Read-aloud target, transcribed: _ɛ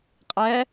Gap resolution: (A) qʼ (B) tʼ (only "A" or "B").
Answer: A